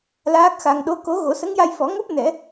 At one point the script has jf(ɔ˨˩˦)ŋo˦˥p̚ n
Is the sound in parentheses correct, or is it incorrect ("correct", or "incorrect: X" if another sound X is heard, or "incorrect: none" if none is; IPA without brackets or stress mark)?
correct